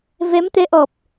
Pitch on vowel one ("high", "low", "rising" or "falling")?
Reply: rising